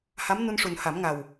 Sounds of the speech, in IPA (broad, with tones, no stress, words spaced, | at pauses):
ha˧˥mnu˧nʂu˨˩n ha˨˩˦mŋa˨˩w